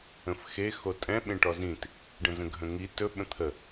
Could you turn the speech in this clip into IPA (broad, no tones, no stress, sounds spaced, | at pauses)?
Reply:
ə̃ f x e x o tʼ ɛ̃ ɓ ẽ ʈ ɔ z ĩ t | ɖ ə̃ z ə̃ ɡʱ ə̃ ŋ i t ɵ ɓ ə̃ t̪ʰ ə